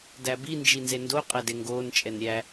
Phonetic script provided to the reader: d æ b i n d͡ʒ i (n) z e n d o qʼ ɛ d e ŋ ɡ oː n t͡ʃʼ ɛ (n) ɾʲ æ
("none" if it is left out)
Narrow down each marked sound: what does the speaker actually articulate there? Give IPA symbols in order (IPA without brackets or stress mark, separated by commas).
n, n